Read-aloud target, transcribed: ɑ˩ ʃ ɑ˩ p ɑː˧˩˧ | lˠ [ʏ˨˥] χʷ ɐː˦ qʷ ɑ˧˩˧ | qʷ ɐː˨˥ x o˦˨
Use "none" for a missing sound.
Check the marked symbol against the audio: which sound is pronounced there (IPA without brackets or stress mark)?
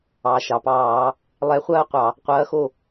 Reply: ɛ˨˥